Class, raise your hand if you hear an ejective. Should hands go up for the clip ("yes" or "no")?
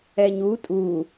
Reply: yes